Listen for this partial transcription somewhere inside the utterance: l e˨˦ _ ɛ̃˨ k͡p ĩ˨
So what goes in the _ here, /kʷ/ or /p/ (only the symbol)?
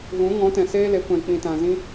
kʷ